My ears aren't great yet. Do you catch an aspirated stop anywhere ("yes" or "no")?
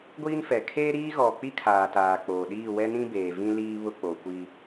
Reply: yes